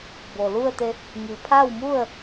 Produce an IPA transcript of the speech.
b o˩ l u˥˨ ə̯ t̪ e˧ | ŋ i˩ pʰ a˥˨ w m u˥˨ ə̯

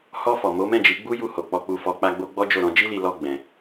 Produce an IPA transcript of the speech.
h ɔ˧ f ɔ˨ m o˨˦ m ɛ̃˦˨ d͡ʒ i˨˦ ɡ͡b u˦ j u˧ h o˨ k͡p ɔ˧ k͡p u˧ f ɔ˧ k͡p a˦ ɡ͡b o˦ ɡ͡b ɔ˦ d͡ʒ o˦˨ ɾ ɔ̃˧ d͡ʒ i˦ l i˧ l ɔ˦ ɡ͡b ɛ̃˧

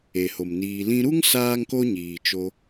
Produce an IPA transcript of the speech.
e˨ h o˨ m n iː˧ l ĩ˧ ɾ u˦ ŋ s aː˦ ŋ k o˦ ɲ iː˨ t͡ʃ o˧

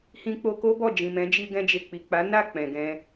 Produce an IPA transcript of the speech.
h ĩ˧ k͡p o˧ k o˦ b ɔ˦˨ d͡ʒ ĩ˨ m ɛ̃˨˦ d͡ʒ i˧ ɡ ɛ̃˧ d͡ʒ e˨ k͡p i˨ k͡p a˨˦ n a˦˨ k͡p ɛ̃˨ ɡ ɛ̃˧

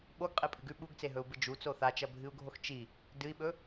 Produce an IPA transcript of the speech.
ɓ o ɡ qʼ e pʼ ɨ ɡ ʉ ɓ u ɡ t͡s e ɦ ɵ u̯ b ɨ d͡ʒ u t͡s o θ a t͡ʃ ɐ bʱ ɨ u̯ ɡʱ o x t͡ʃ i | d ɨ i̯ ɓ ɵ

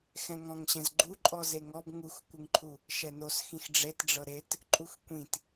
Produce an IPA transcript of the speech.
x ɛ̃ ŋ ɔ̃ ŋ ɕ ɛ̃ z ɡ͡ǃ u ǃʼ ɔ z e ŋ ɔ b ŋ u x kʷ ɯ ŋ ǃʰ u | ʃ ɛ n o s x ĩ x ɖ͡ʐ e t ɖ͡ʐ ɤ ɾ e t | ǃʼ u x kʷ ĩ t

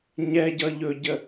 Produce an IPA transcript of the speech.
ɲ ɛ ɟ ʌ ʎ ɵ ɟ ə

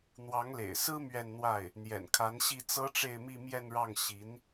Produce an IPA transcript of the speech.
n̪ w ɑ˧˥ ŋ l ḛ˨˩ ɪ̯ s ɹ̩˥ m ɥ ɛ˥˧ n n̪ w a˥˩ ɪ̯ | n̪ j ɛ̰˨˩ n kʰ a˧˥ n ɕ i˥˩ t͡s ɤ˥ ʈ͡ʂ e˥˧ ɪ̯ m i˥˧ m j ɛ˥˧ n ɻ ɑ˥˩ ŋ ɕ i˧˥ n

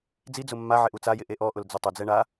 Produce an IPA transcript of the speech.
d͡z i d͡z ʊ mː a ʕ ɪ ʔ u t͡s a j ɪ ʔ e ʔ ɔ ʔ ʊ l d͡z ʊ tˤ ʊ d͡z ɛ ɳ a

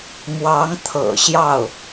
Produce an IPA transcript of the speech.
m w ɑ˧˥ ŋ t̪ʰ ɤ̰˨˩ ɕ j ɑ˥˩ ʊ̯

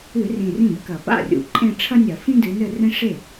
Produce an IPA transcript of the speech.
ɨ˧˩˧ r ĩ˨˩ r ĩ˥˩ b k ɐ˧˩˧ p a̰˥˩ rʲ ṵ˨˩ ǃʼ ẽ˥˧ ʈ͡ʂʰ ɐ˥ nʲ ɐ˧˩˧ f ĩ˥ d ɨ˨˦ n ɘ˥˧ r ẽ˥ ʂ e˥˩

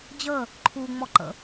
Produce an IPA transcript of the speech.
d͡ʑ əː | ǃʰ u ŋ͡m ɔ ǃ ə̰

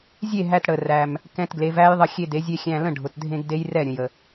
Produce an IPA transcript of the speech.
zʲ e˥˨ ɦ æ˧ t ɽ ə˩ r æ˩ m | k ɛ̃˧ t ɡ l e˩˧ v æ˦˥ j ðˤ ə˧ xʲ e˧ d e˩˧ zʲ e˧ xʲ æ̃˧ l ə̃˥˨ ɖʱ ʊ˩ t dʱ ẽ˧ ɡ d e˦˥ j r ɛ˥˨ ɾʲ ə̃˩ j ə˩

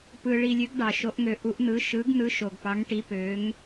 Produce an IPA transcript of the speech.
p ɯ˧ ɭ i˧ lʲ ø˧˥ ɡ ɖ ɑ˧ ʃ o˧˥ ʔ ŋ ø˧˥ ʔ u˧˥ ʔ n̪ ɯ˧˥ ʃ ɯ˧˥ ɡ n̪ ɯ˧˥ ʃ o˧ ɡ p ɑ˧˥ ŋ ʈ i˧˥ p ø˧˥ ŋ

